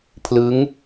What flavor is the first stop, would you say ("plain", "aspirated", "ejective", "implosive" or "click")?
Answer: aspirated